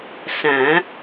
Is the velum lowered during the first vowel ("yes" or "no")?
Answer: yes